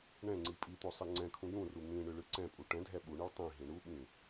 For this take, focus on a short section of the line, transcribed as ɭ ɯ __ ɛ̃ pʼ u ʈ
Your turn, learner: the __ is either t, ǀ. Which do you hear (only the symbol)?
ǀ